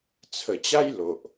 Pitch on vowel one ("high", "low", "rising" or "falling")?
low